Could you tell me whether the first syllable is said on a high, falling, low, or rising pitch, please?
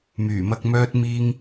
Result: low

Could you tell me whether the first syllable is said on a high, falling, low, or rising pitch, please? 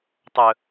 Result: high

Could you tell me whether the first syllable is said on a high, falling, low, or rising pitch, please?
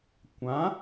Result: rising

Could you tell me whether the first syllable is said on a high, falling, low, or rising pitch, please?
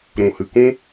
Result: low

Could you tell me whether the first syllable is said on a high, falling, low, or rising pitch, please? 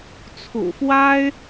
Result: low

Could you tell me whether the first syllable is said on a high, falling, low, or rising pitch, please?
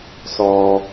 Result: low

